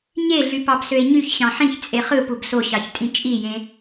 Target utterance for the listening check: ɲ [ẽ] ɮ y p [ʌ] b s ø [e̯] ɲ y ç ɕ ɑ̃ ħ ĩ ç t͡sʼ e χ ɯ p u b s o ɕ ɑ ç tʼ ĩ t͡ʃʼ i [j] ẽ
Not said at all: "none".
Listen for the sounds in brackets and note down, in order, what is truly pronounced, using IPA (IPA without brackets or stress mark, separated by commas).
e, ɑ, e̯, j